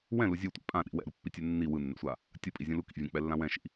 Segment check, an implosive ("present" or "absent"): present